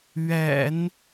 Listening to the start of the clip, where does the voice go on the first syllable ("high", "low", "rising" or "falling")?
low